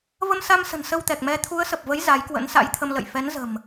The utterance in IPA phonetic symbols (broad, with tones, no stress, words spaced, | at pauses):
və˧msa˧msə̤˨˩n sə˧wt̪ɛ˨˩k̚mɛ˨˦ t̪ʰu˨˦ə̯sə˨˩p̚və˨˦j za˨˦jkwə̰˧˥nsa̰˧˥jt̪ʰə˧m lə̰˧˨jfɛ˨˦nzə̤˨˩m